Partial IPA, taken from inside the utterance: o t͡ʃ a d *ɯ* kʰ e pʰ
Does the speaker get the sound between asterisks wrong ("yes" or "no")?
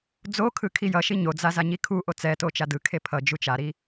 no